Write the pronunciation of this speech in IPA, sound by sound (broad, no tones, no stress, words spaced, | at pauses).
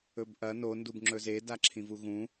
ɵbʔɐ no ndubŋ͡ǁɵze daǁʰĩvuɣũ